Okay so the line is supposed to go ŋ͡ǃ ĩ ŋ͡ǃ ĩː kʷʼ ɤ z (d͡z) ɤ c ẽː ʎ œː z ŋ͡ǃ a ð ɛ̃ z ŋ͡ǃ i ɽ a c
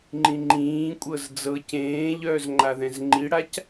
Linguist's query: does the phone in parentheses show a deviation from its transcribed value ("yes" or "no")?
no